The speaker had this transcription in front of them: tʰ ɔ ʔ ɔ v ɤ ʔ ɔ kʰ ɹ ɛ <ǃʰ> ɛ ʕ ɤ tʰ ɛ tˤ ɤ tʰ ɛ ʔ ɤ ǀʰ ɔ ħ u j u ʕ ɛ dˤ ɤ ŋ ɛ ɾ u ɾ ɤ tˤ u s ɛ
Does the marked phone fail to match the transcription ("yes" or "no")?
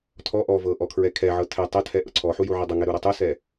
yes